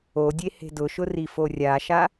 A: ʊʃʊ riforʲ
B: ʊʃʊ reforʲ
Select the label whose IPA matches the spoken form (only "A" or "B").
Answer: A